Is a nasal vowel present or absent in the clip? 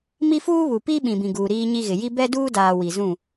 present